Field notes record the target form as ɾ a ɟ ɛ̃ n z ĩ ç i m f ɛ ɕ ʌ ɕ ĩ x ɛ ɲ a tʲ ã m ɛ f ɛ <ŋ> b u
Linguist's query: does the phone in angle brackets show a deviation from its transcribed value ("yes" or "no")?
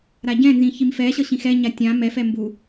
yes